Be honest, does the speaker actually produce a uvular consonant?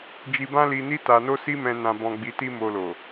no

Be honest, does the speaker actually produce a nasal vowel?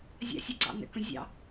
yes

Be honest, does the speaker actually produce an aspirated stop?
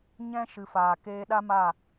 no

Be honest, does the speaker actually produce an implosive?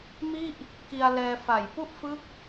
no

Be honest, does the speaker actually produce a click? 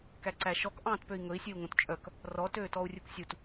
yes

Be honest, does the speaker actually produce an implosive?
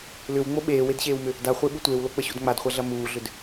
yes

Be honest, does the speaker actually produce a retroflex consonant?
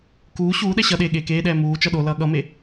no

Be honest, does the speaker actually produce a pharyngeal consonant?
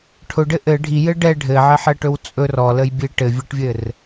yes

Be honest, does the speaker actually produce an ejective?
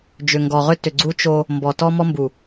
no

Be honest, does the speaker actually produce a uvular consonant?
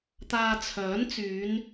no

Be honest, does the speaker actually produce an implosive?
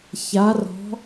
no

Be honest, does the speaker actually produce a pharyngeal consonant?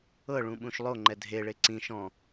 no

